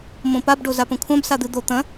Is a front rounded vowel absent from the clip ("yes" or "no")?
yes